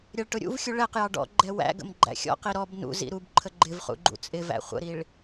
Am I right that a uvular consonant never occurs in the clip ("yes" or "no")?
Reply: no